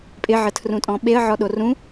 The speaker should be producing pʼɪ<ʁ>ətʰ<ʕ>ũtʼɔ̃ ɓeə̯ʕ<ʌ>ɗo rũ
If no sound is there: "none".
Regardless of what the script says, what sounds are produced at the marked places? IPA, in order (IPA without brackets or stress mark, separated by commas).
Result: ʕ, r, ɔ